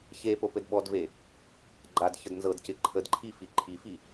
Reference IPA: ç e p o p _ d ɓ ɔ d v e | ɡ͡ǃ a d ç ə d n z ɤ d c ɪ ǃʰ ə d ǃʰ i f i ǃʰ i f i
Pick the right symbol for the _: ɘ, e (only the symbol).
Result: ɘ